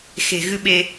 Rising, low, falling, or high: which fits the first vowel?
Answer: low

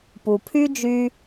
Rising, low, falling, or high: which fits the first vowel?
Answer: low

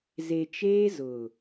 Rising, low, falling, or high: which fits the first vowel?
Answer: low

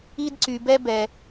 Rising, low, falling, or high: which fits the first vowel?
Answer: high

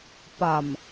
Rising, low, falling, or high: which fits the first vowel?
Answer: low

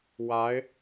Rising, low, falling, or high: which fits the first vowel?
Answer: rising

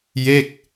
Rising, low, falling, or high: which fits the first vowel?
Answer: falling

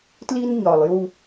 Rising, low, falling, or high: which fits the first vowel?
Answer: high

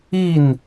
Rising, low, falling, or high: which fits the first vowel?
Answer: falling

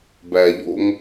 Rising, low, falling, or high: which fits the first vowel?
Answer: low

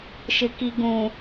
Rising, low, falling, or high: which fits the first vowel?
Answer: low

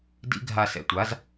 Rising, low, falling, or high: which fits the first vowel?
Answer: high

